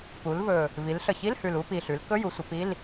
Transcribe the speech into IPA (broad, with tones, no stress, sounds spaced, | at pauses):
p u˩˧ l v ɵ˨˩ | v i˩˧ l ɬ ə˨˩ ç i˧˥˧ l h ʉ˨˩ l u˧˥˧ p i˨˩ ɬ ʉ˩˧ l k ɵ˧˥˧ j u˩˧ sʷ ə˩˧ p i˧˥˧ l